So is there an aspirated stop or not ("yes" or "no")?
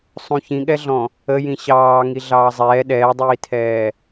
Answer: yes